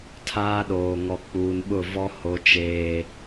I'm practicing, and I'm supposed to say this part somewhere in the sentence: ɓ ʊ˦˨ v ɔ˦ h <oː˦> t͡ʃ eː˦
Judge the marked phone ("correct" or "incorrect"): incorrect